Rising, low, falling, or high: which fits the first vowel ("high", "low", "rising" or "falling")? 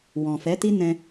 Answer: low